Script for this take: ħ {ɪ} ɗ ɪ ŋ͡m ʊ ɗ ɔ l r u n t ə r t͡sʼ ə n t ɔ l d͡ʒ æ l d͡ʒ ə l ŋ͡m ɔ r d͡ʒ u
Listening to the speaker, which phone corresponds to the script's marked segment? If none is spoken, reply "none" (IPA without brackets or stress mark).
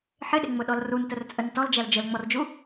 ɪ